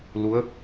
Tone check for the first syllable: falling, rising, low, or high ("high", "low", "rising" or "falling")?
rising